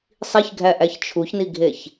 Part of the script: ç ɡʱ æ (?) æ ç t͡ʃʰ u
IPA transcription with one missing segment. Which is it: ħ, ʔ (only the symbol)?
ʔ